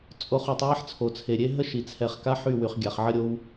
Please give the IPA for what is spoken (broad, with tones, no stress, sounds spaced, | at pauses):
t͡sʼ o˨ χ u˨ tˤ w ɛ˦ ħ t͡sʰ o˨ t͡sʰ e˨ ɾʲ e˦ ɦ ə˦ ʃ i˨ t͡sʰ ɛ˨ χ k a˦ ħ y˦˨ w y˨ χ ɡʲ a˨ χ ʕ ə˦ ɾʲ o˦ w